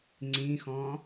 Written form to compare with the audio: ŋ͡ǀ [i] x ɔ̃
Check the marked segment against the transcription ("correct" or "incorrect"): incorrect